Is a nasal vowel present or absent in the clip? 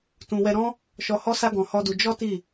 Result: present